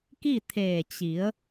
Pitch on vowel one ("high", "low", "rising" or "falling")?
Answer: falling